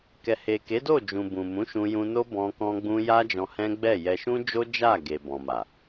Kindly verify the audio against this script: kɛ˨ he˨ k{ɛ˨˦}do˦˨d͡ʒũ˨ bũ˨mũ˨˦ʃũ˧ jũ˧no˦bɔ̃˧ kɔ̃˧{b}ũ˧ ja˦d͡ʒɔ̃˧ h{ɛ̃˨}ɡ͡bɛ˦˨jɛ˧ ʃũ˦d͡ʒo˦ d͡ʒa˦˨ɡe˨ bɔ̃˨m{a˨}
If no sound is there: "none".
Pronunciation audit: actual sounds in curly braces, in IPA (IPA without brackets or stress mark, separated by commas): e˨˦, ɡ͡b, ɛ̃˦, a˨